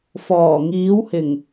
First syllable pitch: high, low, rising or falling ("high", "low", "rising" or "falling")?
low